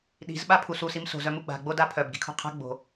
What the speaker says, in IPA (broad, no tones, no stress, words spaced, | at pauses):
ɗi̤z ɓapʰus usim so̤z œmuɡ͡ba̤ ɡ͡bodapʰœb ɡi̤kʰo̤qʰa̤ ɡ͡bo̤